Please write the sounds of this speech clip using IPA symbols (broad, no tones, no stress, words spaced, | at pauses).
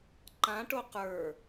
ǃãʈo qə˞